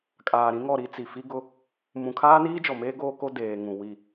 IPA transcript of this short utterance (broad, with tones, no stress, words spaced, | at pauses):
kʼaː˨ɾĩ˦ŋɔ˦˨ɾi˦ t͡si˨fi˦ɡʊ˦ | mũ˨kʰaː˦niː˦ d͡ʒɔ˨meː˦ɡoː˦ ko˦deː˨ŋũ˨ wi˦˨